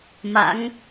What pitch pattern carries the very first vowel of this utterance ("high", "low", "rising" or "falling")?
rising